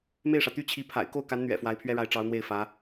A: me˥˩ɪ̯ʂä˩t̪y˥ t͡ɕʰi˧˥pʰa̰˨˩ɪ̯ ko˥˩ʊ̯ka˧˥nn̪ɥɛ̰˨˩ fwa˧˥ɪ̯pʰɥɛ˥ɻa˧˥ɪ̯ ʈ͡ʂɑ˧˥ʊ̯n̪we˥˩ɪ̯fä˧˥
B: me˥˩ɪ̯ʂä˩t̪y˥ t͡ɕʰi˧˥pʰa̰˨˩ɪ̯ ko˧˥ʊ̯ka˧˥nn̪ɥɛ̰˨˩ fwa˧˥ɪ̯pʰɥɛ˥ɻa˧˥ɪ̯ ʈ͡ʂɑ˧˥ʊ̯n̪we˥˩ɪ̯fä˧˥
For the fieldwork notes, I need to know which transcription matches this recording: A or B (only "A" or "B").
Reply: A